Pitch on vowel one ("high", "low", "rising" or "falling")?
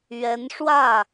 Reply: rising